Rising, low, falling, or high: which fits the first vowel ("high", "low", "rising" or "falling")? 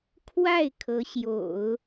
falling